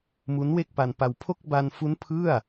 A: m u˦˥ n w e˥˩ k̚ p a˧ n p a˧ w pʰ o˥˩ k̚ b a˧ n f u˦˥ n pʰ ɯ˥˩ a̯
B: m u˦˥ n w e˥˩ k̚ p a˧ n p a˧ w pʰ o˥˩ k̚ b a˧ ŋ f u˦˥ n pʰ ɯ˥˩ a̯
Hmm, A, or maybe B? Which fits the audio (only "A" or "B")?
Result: A